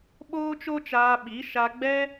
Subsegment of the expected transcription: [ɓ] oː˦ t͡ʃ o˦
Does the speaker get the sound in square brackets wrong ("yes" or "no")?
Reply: no